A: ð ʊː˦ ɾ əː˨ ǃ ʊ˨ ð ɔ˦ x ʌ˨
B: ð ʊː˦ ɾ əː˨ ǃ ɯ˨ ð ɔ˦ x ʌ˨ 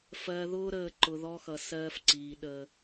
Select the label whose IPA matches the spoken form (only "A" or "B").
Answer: A